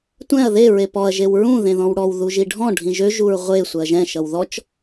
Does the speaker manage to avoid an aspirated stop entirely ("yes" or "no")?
yes